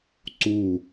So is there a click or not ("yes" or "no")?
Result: yes